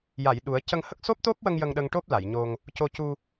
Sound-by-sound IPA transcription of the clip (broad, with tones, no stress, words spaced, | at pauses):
ja˨˩˨j ɗu˨˩˦ə̯ cə˧ŋhə˦˥k̚ so˦˥p̚t̪o˦˥p̚wə˧ŋ jə˧ŋɗə˧ŋʈo˦˥p̚ la˨˩˨jɲo˧ŋ | co˧cu˧